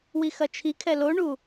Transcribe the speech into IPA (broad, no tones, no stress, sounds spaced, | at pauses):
w i x ɐ t͡ʃʰ i kʰ ɛ l o ɳ u